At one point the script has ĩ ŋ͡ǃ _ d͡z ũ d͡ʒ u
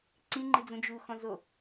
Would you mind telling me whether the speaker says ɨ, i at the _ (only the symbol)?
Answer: ɨ